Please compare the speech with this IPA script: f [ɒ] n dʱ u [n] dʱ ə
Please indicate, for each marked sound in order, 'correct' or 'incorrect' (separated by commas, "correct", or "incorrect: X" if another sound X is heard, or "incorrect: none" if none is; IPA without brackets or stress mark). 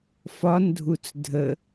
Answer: correct, incorrect: t͡s